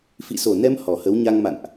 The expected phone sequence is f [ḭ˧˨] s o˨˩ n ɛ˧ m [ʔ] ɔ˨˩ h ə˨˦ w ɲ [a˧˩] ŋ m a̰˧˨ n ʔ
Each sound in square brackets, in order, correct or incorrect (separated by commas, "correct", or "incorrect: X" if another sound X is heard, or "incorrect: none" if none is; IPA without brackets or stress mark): correct, incorrect: h, incorrect: a˧